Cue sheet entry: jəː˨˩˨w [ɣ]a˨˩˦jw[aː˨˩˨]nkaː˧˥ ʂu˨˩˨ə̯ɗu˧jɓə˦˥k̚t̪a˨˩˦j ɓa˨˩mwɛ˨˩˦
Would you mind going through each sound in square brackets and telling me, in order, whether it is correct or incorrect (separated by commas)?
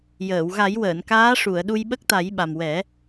correct, incorrect